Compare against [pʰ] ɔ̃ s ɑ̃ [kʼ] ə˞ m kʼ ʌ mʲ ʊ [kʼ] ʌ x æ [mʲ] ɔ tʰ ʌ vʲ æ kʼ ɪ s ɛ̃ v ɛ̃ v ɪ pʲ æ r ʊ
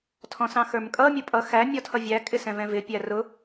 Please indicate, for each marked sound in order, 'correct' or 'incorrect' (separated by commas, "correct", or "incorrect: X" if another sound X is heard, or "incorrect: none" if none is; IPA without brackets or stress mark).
incorrect: tʰ, incorrect: x, incorrect: pʼ, correct